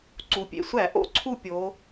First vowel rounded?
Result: yes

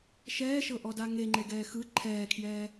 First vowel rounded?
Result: no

